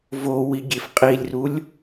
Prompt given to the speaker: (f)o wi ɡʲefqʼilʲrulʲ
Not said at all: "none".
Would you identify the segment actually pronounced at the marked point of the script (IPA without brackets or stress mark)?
v